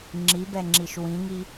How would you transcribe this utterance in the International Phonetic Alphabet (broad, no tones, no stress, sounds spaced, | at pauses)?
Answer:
ŋ͡ǁ i b ɛ ŋ͡ǁ i ʃ w ĩ ŋ i